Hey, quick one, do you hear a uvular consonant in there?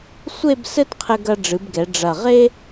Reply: yes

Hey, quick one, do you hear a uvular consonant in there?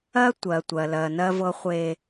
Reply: yes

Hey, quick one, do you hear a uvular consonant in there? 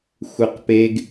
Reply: yes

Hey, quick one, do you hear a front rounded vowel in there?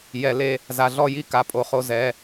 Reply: no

